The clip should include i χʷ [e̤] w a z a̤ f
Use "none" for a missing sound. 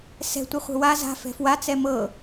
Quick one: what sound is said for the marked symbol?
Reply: e̤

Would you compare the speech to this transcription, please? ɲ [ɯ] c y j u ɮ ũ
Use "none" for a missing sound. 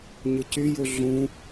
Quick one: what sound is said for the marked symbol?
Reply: ɯ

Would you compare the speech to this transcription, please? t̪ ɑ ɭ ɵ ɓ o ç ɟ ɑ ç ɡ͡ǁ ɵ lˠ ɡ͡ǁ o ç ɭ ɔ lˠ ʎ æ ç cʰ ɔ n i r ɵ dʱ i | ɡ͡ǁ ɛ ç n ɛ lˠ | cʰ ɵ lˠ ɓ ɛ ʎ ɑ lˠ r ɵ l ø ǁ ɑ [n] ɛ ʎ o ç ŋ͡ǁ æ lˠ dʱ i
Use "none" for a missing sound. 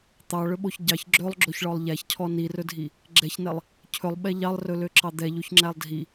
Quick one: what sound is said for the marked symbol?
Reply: d̪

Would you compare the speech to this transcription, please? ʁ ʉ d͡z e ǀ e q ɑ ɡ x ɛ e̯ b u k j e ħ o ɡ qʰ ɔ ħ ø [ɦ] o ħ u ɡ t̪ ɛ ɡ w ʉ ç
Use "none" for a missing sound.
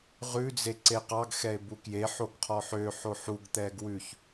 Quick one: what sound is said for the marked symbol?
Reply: ħ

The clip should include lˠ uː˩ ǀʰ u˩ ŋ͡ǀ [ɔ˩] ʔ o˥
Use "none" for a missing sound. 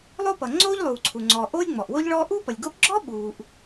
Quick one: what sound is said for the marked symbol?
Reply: ɔː˩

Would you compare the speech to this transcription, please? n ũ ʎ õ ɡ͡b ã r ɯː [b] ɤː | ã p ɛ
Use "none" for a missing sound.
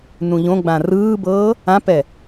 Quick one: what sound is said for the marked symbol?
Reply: b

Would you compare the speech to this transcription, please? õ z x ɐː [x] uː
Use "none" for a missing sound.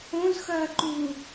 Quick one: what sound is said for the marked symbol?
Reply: ǃ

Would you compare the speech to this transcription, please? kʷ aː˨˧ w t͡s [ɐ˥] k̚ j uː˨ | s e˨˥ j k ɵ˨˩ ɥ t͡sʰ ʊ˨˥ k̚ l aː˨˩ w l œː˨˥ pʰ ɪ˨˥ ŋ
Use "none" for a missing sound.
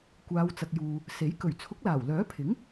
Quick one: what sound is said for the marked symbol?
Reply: ɐ˨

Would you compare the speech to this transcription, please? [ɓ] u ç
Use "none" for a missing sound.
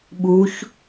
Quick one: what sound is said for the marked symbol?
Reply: ɓ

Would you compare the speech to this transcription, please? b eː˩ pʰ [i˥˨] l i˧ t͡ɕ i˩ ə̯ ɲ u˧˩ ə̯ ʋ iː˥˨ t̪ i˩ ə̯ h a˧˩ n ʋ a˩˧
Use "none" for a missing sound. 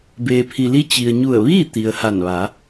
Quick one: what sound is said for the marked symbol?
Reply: i˩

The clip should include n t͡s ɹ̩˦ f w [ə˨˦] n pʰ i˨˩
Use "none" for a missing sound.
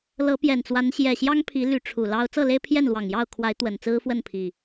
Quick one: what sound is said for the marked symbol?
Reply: ə˥˨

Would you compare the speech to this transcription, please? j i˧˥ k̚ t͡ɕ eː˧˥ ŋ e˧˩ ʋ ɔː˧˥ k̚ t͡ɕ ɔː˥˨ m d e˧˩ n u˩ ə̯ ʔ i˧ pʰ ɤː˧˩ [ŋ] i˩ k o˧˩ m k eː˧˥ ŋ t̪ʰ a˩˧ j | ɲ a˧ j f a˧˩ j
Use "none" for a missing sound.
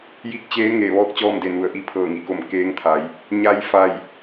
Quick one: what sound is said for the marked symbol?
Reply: ŋ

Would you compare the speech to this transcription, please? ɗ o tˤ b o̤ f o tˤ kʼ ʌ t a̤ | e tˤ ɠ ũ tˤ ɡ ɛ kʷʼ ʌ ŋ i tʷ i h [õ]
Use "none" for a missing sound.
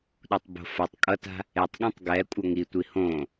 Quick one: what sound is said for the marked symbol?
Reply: õ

